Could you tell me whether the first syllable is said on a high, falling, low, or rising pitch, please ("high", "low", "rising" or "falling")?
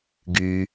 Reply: low